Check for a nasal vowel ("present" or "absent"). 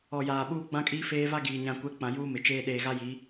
present